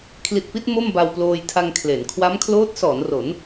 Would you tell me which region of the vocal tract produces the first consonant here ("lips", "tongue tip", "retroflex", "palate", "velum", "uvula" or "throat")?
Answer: velum